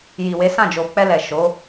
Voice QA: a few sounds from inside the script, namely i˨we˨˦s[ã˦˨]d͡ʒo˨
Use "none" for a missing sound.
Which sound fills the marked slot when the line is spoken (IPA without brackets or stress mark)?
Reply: ã˦˨